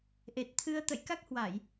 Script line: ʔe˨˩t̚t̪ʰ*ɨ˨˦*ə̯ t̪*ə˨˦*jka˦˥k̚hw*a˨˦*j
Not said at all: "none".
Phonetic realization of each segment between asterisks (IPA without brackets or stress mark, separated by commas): ɨ˧, ə̰˧˨, a˧˩˨